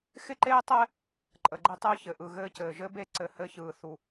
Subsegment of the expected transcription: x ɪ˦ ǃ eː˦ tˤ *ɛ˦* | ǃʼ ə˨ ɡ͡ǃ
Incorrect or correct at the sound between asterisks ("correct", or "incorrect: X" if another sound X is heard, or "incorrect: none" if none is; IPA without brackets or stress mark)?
correct